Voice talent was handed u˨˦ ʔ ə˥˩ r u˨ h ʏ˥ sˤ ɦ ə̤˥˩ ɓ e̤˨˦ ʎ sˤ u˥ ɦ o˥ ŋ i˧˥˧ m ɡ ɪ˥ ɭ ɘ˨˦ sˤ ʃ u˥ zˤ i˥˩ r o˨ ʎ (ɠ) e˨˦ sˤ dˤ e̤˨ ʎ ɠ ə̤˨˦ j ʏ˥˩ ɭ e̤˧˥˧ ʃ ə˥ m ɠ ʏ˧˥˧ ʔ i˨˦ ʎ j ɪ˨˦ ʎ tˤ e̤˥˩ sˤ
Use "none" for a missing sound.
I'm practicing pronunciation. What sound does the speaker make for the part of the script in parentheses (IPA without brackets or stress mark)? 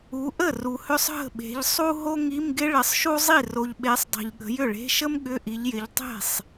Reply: ɓ